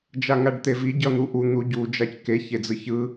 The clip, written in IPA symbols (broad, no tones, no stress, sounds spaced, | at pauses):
d͡ʒ a ŋ a ɖ t̪ e v i ɟ ʌ n̪ u ʔ u n̪ u ɟ u d͡ʒ a c k e ç e d͡z ɯ ç ɯ